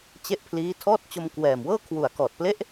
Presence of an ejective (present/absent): absent